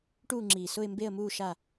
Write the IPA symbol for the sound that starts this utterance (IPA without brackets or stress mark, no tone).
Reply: ʈ